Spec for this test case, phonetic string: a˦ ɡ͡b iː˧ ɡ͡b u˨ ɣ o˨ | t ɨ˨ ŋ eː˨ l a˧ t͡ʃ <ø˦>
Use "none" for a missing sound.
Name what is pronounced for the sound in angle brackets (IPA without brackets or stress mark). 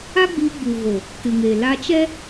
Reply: ɛ˦